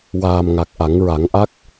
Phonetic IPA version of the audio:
w aː˨˩ m ŋ a˨˩ k̚ ʔ a˨˩˦ ŋ ɹ a˨˩˦ ŋ ʔ a˦˥ k̚

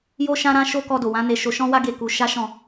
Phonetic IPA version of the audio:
j o˦ ʃ ã˦ ɾ ã˦ ʃ o˦ k ɔ˧ d o˨ w ã˨˦ n e˦ ʃ o˦ ʃ ɔ̃˦ w a˦ ɡ e˦˨ k u˧ ʃ a˦ ʃ ɔ̃˦˨

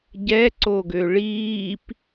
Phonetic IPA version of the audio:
ɟ ɛ ǀ o ɡ ø ɭ iː p

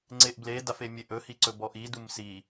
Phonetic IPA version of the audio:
ŋ͡ǀ e ʔ b l e d a f e mʲ e ʔ ɵ h i ǀ ɵ b ɔ ʔ i d u m s i

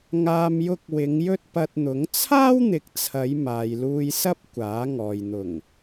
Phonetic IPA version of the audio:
ŋ aː˧ m j ʊ˧ k̚ w ɪ˨˧ ŋ j ɵ˥ t̚ p ɐ˧ t̚ n̪ ʊ˨˥ ŋ t͡sʰ aː˥ w n̪ ɪ˨˥ k̚ t͡sʰ ɐ˨˧ j m aː˨ j l uː˧ j s ɐ˥ p̚ kʷ aː˨˥ ŋ ɔː˨ j n̪ ʊ˨˩ ŋ

